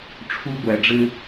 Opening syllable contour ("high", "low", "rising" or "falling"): high